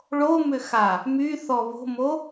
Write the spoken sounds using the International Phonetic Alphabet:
ɭ o m ʏ x a | m y θ ɔ β o̤ m o

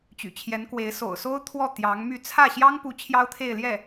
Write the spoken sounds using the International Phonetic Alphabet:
t͡ɕ y̰˨˩ t͡ɕʰ j ɛ˧˥ n k w e˧˥ ɪ̯ s o̰˨˩ ʊ̯ s o˥ ʊ̯ t̪ʰ w ɔ˥˩ t̪ j ɑ˧˥ ŋ m y˥˧ t͡sʰ ä˥˩ ɕ j ɑ˥ ŋ p u˧˥ t͡ɕʰ j ɑ˥ ʊ̯ t̪ʰ e˥˧ ɪ̯ l j ɛ˥˩

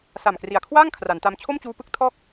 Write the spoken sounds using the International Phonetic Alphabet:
s a˨˩ m k r i˨˩ a̯ kʰ w aː˥˩ ŋ kʰ r a˩˦ n t a˧ m t͡ɕʰ o˥˩ m t͡ɕ uː˧ p ɯ˦˥ k̚ tʰ ɔː˥˩ k̚

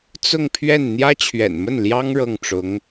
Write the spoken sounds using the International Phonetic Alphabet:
t͡s ʊ˥˧ ŋ pʰ ɥ ɛ˥˩ n n̪ j ä˥ t͡ɕʰ ɥ ɛ̰˨˩ n m ə˥˩ n l j ɑ˥ ŋ ɻ ɤ˥˩ ŋ ʈ͡ʂ ʊ˧˥ ŋ

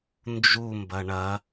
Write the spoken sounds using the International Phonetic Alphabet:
n d͡ʒ u m b ɐ ɳ ɐ

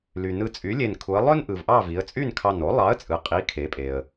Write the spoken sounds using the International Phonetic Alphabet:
l y˩ n ɯ˧˩ t͡sʼ y˨˥ lʲ e˧˩ n kʰ u˩˧ ə̯ lˠ ø˥ n ʔ ɯ˩ v ʔ ɑ˥˨ v i˩˧ ə̯ t͡sʼ y˥˨ n kʰ ɑ˧˩ n o˨˥ lˠ ɑ˨˥ ə̯ t͡sʼ ɯ˩ qʼ i˨˥ kʰ e˩˧ pʼ e˩ ə̯

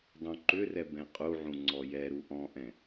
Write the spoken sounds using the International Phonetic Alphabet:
dˤ ũ ǃ ʏ r ɛ b ɛ̃ qʼ u ʕ ũ ŋ͡ǀ ɔ j ɛ ɾ u ʔ ɔ̃ ʔ ɛ̃

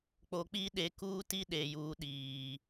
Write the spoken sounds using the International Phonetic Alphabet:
k͡p o˨ k͡p iː˦ ɗ e˨ k uː˦ t i˦ ɗ eː˨ j uː˨˦ ɗ iː˨

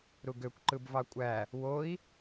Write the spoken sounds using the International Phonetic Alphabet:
ɾ u ɡ ø kʷ ǃ ɯ b v ɑ kʷʼ æ | w o i̯

